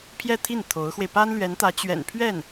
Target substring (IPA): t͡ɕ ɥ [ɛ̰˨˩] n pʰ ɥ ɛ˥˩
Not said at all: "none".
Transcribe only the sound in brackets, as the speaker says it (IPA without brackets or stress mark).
ɛ̰˨˩